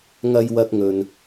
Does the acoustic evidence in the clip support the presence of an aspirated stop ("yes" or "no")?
no